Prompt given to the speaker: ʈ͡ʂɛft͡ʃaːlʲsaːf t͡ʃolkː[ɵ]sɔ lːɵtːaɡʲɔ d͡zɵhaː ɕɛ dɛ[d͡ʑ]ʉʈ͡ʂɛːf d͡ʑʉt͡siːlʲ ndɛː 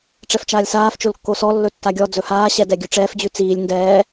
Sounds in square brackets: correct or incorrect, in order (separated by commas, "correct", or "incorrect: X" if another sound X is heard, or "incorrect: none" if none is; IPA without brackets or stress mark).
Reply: incorrect: o, incorrect: ɡʲ